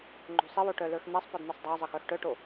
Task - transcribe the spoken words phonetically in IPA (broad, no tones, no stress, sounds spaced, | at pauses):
ŋ͡ǃ o̤ sˤ ɪ w o ʈ œ l ə˞ x n̪ ɛ sˤ p ɔ d n̪ ə˞ sˤ dˤ a zˤ ə x œ x ʈ œ ʈ o